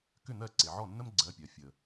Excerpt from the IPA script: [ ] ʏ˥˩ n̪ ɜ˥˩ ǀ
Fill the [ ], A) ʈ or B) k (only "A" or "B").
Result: B